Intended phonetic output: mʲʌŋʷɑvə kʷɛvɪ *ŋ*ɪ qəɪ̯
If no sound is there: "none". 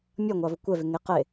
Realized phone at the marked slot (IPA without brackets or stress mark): ŋ